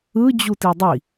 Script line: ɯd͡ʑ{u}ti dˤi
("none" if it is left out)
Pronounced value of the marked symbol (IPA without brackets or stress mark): u